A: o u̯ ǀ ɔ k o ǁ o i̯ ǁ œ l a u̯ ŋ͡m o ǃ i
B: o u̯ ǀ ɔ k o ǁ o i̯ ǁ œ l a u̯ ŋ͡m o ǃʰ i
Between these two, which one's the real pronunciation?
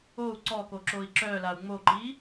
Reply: A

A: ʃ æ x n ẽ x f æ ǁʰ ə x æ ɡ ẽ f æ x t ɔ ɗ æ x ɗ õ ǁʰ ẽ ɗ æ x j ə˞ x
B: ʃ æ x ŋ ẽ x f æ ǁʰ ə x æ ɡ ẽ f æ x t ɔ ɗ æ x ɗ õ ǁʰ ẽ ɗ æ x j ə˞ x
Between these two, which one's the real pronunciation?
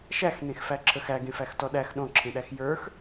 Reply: A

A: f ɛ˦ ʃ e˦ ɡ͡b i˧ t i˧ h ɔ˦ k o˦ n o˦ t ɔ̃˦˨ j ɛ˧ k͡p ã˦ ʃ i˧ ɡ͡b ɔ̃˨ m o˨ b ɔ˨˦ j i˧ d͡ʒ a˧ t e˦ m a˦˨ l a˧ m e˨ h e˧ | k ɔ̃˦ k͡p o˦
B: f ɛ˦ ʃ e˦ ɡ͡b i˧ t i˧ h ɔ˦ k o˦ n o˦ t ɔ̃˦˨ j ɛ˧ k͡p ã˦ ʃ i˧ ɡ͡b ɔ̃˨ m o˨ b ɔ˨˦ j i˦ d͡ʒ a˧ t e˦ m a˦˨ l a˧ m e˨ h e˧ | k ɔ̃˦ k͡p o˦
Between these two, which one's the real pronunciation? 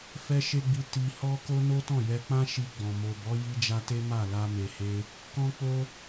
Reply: A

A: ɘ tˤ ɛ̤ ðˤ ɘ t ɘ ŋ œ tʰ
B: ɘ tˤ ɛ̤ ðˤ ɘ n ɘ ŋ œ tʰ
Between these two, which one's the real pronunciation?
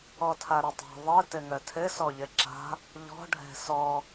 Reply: A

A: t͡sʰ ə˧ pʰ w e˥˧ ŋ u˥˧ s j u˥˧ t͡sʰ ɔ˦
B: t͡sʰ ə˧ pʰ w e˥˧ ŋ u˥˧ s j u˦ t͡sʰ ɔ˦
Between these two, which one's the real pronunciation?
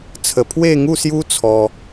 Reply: B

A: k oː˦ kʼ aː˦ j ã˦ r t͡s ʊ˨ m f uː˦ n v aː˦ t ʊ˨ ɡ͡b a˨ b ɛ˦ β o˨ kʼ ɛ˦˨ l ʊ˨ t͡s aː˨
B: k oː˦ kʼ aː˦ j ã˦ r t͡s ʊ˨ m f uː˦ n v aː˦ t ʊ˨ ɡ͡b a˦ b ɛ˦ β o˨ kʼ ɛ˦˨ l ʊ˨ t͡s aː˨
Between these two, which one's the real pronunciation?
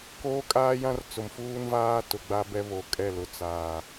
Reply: B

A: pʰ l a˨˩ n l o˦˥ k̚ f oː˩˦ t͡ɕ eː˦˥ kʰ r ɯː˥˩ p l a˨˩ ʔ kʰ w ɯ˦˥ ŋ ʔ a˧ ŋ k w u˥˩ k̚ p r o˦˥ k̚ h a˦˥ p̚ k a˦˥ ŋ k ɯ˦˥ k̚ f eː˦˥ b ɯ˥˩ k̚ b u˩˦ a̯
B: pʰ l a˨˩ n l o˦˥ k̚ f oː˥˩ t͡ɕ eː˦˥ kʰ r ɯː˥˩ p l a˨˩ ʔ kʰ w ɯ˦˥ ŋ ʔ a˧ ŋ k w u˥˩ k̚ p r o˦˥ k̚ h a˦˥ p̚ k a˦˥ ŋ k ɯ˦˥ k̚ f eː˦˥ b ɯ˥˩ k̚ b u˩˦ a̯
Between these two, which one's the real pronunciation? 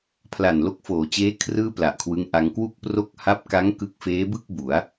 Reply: A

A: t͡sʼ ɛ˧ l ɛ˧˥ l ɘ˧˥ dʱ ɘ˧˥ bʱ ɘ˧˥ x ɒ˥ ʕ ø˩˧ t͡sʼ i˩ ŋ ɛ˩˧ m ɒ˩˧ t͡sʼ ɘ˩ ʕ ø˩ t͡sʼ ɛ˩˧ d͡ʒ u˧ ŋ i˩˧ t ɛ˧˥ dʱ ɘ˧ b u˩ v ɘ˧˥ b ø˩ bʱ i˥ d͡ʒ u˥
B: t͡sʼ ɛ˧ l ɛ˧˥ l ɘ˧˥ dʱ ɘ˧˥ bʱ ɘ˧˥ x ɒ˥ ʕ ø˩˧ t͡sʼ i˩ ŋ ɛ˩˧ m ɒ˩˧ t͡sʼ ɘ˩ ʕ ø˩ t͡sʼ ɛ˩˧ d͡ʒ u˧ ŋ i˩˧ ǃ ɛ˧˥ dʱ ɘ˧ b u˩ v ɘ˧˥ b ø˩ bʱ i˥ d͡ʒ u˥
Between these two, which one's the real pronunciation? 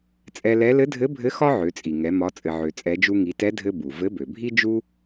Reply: A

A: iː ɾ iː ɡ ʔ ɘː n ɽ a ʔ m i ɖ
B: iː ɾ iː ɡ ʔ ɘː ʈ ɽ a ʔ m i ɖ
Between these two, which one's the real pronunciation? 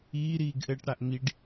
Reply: B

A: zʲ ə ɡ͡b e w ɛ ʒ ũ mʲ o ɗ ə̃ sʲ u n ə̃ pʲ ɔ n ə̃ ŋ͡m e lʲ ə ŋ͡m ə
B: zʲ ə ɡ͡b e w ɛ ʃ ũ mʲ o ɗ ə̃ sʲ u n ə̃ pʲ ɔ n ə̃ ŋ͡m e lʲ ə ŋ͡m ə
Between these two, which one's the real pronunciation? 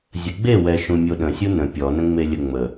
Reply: B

